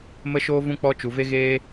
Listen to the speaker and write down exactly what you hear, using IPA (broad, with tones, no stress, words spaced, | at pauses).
mə˦ʃoː˦vũ˦ k͡pɔ˦ t͡ʃu˨ve˦ɣeː˦